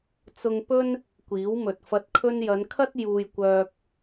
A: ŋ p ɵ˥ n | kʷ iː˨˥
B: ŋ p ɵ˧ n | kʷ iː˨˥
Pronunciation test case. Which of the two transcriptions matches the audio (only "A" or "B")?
A